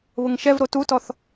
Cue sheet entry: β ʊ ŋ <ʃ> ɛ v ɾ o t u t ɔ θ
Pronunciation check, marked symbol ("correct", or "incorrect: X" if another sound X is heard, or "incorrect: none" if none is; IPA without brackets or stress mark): correct